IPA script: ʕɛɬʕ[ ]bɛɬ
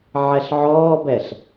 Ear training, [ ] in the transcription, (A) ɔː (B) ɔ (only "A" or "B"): A